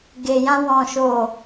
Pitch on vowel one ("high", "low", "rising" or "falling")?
low